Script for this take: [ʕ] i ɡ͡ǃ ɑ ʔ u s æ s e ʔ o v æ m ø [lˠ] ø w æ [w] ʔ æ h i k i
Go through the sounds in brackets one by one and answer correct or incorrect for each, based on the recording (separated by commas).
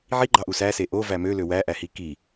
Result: correct, incorrect, incorrect